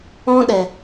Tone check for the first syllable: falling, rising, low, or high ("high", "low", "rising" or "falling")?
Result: high